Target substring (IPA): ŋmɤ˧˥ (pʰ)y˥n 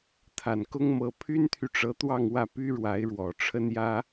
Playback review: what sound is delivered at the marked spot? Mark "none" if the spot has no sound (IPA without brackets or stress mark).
pʰ